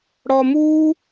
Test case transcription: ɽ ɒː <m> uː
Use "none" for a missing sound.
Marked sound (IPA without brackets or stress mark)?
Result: m